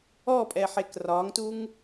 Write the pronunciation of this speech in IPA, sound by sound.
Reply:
ɔ pʼ ɛ ħ e k r ɒ ŋ t u ŋ

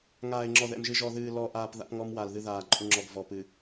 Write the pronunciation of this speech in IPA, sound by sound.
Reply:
ŋ aː˨ ɪ̯ ŋ͡ǁ ɔ˨ ð ɛ̰˨ m ʒ ɨ˨ ʒ ɔ˨ ð ɨː˨ l ɔ˨ ʔ aː˨ p ð a̰˦ p ŋ ɔ˦ m w a˨ l ð ɨ˦ ð aː˨ ǃʼ u˨ ŋ͡ǁ ɔ˨ ɡ v ɔ˨ p ɨ˨

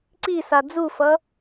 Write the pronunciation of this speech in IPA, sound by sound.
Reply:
ǀ i s a d͡z u f ʌ

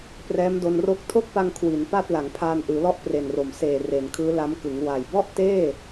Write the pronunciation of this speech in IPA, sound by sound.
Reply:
p r ɛː˦˥ m d o˧ n r o˥˩ k̚ tʰ o˥˩ k̚ p a˧ ŋ kʰ w i˩˦ n p a˥˩ t̚ l a˩˦ ŋ pʰ aː˧ n ʔ ɯː˩˦ l ɔ˥˩ ʔ p r e˨˩ n r o˨˩ m s eː˨˩ r e˩˦ n kʰ ɯː˦˥ l a˦˥ m k ɯ˩˦ ŋ w a˨˩ j b ɔ˥˩ ʔ t eː˥˩

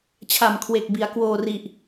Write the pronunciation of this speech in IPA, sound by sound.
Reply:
t͡ɕʰ a˨˩ m kʰ w e˨˩ k̚ b i˩˦ a̯ k w oː˧ r i˨˩ ʔ

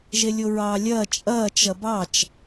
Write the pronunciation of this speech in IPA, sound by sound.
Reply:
ʒ e lʲ o ɹ ɑː lʲ ɐː t͡ʃʼ ɐː t͡ʃ ɐ b ɑ t͡ʃ

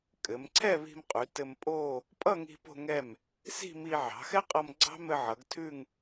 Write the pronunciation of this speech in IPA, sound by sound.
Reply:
kʼ ɘ˩˧ m ǀʰ ɛ˥˧ β i̤˧ m qʼ ʉ˩˧ t ɘ˧ m pʼ o˥˧ | pʼ ʌ˥˧ ŋ i̤˧ p o̤˧ ŋ ɛ˧˩ m | s i̤˥˧ m i˧ ʕ ɑ̤˩˧ x ɛ˥ qʼ ʌ˧ m ɡ͡ǀ ɑ̤˥ m ɘ˧ ʕ ʌ˩˧ ɡ tʰ ʉ˥˧ ŋ

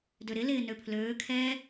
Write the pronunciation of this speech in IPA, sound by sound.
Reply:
d ø ɾ ɪ l ɪː n ø pʰ l øː kʰ ɛː

